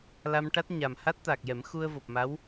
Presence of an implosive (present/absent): absent